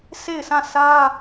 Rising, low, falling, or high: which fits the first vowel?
falling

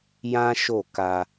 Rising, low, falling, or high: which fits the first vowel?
high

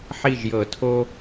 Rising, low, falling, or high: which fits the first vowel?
falling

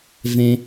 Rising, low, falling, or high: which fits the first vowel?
low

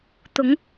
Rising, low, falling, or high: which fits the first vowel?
rising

